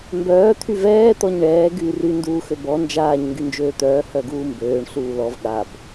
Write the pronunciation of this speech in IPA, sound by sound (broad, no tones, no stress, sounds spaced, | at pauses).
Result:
m b œː t̪ʰ y v ɛː t̪ ɔ ɲ ɳ ɛː ɡ yː r y n d uː x ø b ɔ n d͡ʒ aː ɲ ŋ ɡ y n d͡ʒ øː t̪ œː h œ ɡ uː m b øː ɳ ɬ uː l ɔ v ɠ a b